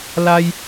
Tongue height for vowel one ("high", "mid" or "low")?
low